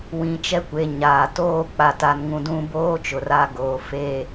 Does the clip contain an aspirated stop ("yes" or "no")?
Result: no